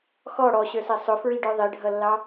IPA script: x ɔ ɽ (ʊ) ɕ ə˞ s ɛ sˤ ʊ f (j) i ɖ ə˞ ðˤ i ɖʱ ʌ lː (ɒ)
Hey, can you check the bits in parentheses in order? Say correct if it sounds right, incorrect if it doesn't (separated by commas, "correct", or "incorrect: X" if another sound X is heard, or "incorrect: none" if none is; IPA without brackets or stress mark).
incorrect: ɔ, incorrect: ɹ, incorrect: ɑ